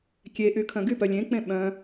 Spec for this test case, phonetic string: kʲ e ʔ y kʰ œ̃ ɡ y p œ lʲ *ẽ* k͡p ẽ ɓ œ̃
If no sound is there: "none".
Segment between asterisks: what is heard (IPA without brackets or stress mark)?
ẽ